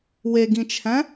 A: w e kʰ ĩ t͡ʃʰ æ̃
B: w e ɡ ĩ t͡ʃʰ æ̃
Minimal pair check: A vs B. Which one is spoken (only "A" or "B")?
B